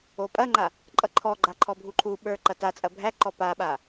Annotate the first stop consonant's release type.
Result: ejective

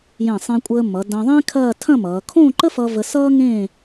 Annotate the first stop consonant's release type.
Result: ejective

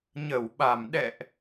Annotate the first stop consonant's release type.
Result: implosive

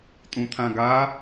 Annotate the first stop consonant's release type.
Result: ejective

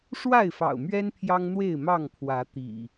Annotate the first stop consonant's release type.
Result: aspirated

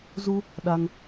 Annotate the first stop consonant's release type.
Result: implosive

